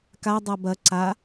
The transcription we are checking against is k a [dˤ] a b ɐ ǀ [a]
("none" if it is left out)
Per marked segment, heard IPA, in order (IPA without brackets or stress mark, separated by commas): dˤ, a